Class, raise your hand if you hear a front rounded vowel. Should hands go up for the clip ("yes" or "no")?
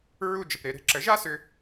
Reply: yes